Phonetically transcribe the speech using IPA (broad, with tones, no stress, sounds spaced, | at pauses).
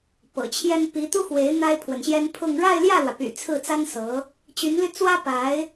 p ɤ̰˨˩ t͡ɕʰ j ɛ˥ n p i˧˥ t̪ u˥ x w e˧˥ ɪ̯ n̪ a˥ ɪ̯ pʰ w ə˨ n ɕ j ɛ˥ n pʰ ʊ˥˧ ŋ ɻ a˥˧ ɪ̯ l j ä˥˩ l w ä˩ p y̰˨˩ t͡sʰ ɹ̩˥˩ t͡s a˥ n s ɤ˧˥ | t͡ɕ y˧˥ n l y˧ t͡s w ä˥ p a˧˥ ɪ̯